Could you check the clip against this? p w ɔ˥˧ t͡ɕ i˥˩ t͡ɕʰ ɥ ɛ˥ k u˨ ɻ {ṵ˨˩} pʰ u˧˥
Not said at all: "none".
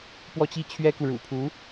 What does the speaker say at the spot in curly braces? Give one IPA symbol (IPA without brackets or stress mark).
ṵ˨˩